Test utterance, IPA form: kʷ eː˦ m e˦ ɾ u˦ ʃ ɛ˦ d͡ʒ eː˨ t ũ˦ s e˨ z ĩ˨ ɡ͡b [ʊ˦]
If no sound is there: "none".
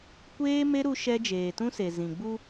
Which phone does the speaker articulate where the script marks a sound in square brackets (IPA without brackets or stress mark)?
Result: u˦